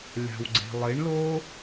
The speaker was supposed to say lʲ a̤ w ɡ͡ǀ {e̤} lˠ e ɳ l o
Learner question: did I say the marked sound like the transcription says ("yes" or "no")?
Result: yes